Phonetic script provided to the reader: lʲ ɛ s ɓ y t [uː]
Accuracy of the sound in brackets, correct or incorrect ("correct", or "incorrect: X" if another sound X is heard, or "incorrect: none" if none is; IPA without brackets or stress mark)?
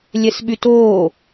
incorrect: oː